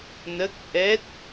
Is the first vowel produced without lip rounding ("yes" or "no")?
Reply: yes